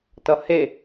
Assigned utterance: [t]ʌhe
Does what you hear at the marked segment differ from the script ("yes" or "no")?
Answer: no